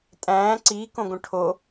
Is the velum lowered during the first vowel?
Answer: yes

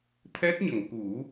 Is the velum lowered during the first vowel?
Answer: no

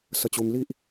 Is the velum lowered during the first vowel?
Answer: no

